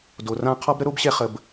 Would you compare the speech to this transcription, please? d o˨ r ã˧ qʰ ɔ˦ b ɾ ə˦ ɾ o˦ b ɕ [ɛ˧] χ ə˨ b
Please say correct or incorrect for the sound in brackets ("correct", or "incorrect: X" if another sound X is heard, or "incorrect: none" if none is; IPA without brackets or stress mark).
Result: correct